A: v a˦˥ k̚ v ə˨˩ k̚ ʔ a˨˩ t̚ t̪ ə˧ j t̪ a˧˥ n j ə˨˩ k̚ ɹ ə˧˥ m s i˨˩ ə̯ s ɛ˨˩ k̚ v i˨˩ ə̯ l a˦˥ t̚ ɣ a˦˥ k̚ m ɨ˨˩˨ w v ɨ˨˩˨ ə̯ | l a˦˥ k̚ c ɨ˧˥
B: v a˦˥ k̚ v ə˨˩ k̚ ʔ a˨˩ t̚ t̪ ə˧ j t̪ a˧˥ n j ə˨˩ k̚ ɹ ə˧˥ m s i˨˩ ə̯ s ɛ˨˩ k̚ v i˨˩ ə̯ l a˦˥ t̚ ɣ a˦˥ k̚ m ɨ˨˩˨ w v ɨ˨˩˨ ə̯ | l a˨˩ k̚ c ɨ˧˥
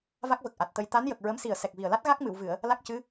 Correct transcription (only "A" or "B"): A